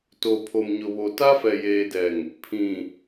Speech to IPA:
t o˨ pʰ o˨ m ɲ ʊ˨ β o˨ t a˦ f ɛ˨ j eː˨ d ɛ˨ ŋ | pʰ ĩ˨

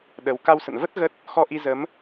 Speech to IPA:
ɗ ə˨˦ w k a˧ w s ə̰˧˨ n v ə˦˥ t̚ ɣ ə˦˥ t̚ | x ɔ˧ ʔ i˧ z ə˨˦ m

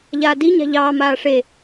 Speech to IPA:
ʎ aː d i ɲ a̤ ʎ ɑː m aː ʂ e

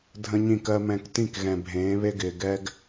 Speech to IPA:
dʱ ə̃˦ ɲ ĩ˦˨ k ɜ˦ m ɛ̃˦˨ k t ĩ˦˨ k ɣ ɛ̃˨ bʱ ẽː˨˦ β e˦ ɡ ɪː˨ ɡ ɛ˦ ɡ

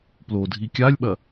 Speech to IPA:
p l o dʱ i kʲ a lʲ ɓ ɐ

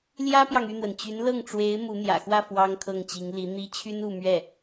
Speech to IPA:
l j ä˥ p j ɑ˨ ŋ y˥˩ n̪ w ə˩ n t͡ɕ y˧˥ n l ɤ˥˩ ŋ ʈ͡ʂ w e˧˥ ɪ̯ m u˧˥ n̪ j ä̰˨˩ x w ä˥˩ f w ɑ˥ ŋ kʰ ɤ˥˩ ŋ t͡ɕ i˧˥ ŋ l i˧˥ n̪ i˥ t͡ɕʰ y˥ n u˥˧ m ɥ ɛ˥˩

